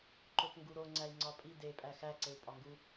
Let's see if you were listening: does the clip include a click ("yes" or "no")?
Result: yes